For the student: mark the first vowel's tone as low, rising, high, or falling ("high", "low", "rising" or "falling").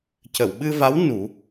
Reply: low